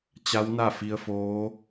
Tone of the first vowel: rising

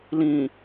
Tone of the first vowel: low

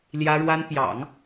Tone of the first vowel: high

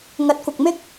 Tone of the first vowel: rising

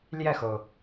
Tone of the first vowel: falling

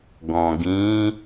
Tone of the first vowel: low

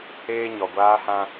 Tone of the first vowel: high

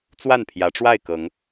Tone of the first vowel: falling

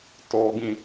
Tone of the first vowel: high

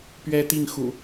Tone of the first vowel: high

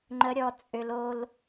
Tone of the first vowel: rising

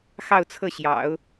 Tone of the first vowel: falling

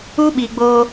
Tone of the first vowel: high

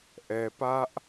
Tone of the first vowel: low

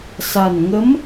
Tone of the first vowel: low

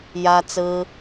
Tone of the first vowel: high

